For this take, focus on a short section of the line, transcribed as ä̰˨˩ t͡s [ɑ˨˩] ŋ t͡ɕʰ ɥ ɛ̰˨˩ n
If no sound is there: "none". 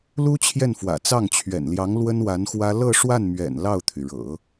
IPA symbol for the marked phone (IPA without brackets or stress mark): ɑ˥˩